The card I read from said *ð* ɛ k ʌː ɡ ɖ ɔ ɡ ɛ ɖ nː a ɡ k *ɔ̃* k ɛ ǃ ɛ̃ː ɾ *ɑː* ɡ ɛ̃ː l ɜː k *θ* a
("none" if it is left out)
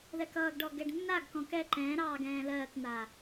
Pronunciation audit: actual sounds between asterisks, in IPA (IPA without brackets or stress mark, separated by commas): ð, ɔ̃, ɑː, n̪